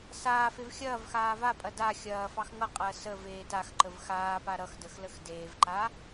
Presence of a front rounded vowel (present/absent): absent